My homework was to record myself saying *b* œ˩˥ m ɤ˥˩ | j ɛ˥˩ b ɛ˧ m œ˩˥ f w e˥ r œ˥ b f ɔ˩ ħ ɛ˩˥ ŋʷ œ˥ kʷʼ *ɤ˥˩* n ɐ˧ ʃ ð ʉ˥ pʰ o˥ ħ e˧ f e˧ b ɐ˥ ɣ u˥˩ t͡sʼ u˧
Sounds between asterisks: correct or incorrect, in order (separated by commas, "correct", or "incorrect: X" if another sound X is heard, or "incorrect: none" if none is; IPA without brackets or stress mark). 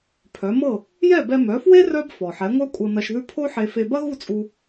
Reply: incorrect: pʰ, incorrect: ɤ˧